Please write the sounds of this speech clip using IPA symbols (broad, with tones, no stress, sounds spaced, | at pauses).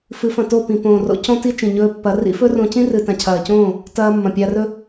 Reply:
f ɨ˨˦ f ɐ̃˨ t o˦˨ p ĩ˨ p õː˨ r o̰˧ c õ˦ t i˦ t͡ʃ ĩ˨ ɲ ɵː˧ pː ɐ˨˦ r ḭ˧ f ɵ˦ r õ˧ c ĩ˦ r ɨ˨ t ã˨ cʰ ɐː˨ c õː˦˨ | t ɐː˧ mː ɐ̃˨ pʲ a˧ r ɵ˦